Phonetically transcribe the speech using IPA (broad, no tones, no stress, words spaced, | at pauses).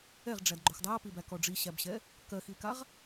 ɛʁɖ͡ʐæd ɡ͡ǃoxdˤæɐ̯pibæ kɔɖ͡ʐiɕæbɕɛ | kɜxikaʁ